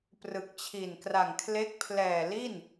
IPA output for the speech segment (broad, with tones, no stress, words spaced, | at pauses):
prɯ˨˩k̚t͡ɕʰi˨˩nkra˨˩ŋkʰle˦˥k̚ pʰlɛː˨˩li˥˩n